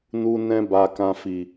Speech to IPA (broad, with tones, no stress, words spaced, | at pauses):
nu˧nɛ̃˧ ba˨kã˨ fi˨